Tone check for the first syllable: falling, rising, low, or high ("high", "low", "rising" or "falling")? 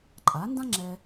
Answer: rising